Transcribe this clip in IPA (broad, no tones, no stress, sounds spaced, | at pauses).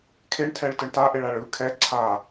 kʰ e ɳ tʰ ɛ ɭ t ɯ ɳ t a ʔ e ɭ a ɭ ɯ kʰ ɛ ǀʰ a